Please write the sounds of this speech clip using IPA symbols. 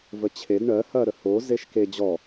v ə t͡ɕʰ e d ɳ ɜ h ɐ ɾ ə h o z e ʃ k e d͡ʑ ɔ

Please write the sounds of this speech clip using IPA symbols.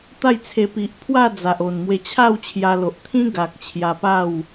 t̪ a˥˧ j t͡sʰ e˧ p i˨ ʔ pʰ w a˥˧ d͡z a˨ ʔ o˨˩ n m w e˧ t͡ɕʰ a˥˧ w t͡ɕʰ j a˧ l o˨ ʔ t̪ʰ ĩ˦ ɡ a˨ k̚ t͡ɕʰ j a˧ p a˥˧ w

